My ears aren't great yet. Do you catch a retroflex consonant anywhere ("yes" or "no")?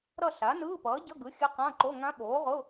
no